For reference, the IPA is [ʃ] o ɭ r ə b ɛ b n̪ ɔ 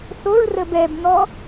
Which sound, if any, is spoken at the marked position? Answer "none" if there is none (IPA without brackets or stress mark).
s